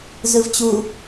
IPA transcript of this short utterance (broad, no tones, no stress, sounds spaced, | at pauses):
z ɯ v t͡ɕ u